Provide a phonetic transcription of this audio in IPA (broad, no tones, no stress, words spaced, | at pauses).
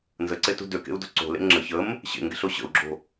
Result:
nzəǀetṳ døkḛu̯do̤ ǀo̤lḛ ŋ͡ǁə çəm | ɕḛŋɡe̤ɬo ɕə̰u̯ɡ͡ǁo̤